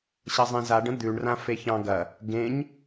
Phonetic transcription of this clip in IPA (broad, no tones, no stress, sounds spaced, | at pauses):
ɕ ɐ zˤ ẽ z a ɖ ə̃ d̪ ʉ ɳ r ã f e ç ɑ̃ ɡ ɐ | ɡ ẽ ɲ